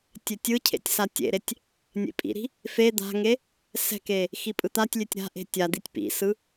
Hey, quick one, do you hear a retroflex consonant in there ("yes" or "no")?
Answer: no